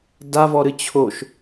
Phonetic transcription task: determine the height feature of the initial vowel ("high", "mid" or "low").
low